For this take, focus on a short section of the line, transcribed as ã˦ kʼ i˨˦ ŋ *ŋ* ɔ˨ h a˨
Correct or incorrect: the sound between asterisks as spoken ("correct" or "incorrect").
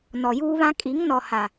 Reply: incorrect